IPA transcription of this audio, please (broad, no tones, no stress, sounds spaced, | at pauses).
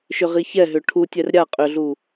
ʃ ʏ ʁ i ç ɛ ɦ ʏ ʈʰ u tʲ ɛ r ɾʲ a qʼ ʏ ɮ u